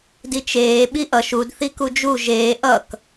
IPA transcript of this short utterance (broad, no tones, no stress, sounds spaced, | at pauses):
d i t͡ʃ eː ɓ i ʔ ʌ ʃ u d θ i k u d͡ʒ u ʒ eː ʔ ʌ k